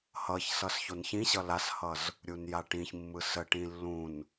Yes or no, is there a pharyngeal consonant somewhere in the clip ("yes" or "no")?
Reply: no